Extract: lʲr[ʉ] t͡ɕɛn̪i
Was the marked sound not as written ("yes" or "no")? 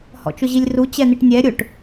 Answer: yes